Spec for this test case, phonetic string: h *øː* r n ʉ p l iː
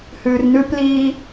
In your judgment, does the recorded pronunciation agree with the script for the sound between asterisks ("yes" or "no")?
no